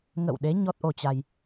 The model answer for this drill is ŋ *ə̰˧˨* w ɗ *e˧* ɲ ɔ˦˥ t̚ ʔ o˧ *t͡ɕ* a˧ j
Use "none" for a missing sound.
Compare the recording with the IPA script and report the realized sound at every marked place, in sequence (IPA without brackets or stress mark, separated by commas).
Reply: ə̰˧˨, e˨˦, t͡ɕ